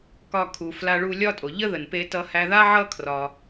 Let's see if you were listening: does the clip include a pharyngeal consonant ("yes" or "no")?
yes